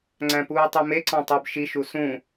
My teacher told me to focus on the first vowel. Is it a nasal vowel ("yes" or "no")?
yes